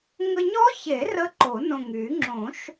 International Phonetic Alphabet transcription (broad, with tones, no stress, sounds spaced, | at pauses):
ŋ ə˧ ɲ ɔ˦˥ ç e˨˩˦ r ə˦˥ ǃ o˨˩˦ n õ˨˩ ŋ y˨˩˦ ŋ͡ǁ õ˨˩˦ ʃ